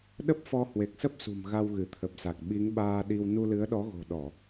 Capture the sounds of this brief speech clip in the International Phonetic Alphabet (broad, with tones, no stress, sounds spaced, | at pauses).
ɗ ə˦˥ p̚ f ɔ˧ h w e˨˩ k̚ s ə˦˥ p̚ s ṳ˨˩ m ɣ a˧ w ɣ ɨ˧˩ t̪ʰ ə˨˩ p̚ s a˨˩ k̚ ɓ i˨˦ ŋ ɓ aː˧ ɗ i˧ w n u˧ l ɨ˨˦ ə̯ ɗ ɔ˨˦ ɣ o̤˨˩ ɗ ɔ˧˩˨